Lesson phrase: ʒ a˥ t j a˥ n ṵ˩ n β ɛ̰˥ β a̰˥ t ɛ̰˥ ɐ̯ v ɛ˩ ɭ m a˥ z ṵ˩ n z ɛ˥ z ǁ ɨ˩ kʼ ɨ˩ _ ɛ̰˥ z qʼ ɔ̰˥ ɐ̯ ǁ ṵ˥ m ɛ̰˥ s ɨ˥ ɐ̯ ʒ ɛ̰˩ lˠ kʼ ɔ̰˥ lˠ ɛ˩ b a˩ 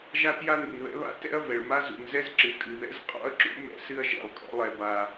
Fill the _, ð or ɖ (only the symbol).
ð